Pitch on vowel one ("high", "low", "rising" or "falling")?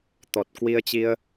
low